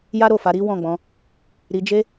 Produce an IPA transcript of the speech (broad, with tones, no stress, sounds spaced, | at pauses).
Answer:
j a˦ ɾ o˦˨ f a˨˦ ɾ i˦ w ɔ̃˦˨ ɡ͡b ɔ̃˧ | ɾ i˧ d͡ʒ e˦